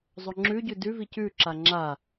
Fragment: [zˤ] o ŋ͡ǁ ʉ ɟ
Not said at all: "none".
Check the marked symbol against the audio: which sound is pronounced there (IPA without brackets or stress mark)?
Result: zˤ